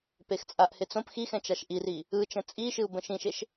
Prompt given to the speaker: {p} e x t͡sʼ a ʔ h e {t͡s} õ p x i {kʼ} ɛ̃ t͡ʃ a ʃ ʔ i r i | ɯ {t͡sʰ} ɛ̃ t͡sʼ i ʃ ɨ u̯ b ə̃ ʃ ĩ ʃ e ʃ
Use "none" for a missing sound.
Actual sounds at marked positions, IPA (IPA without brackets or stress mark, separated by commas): p, t͡s, x, t͡ʃ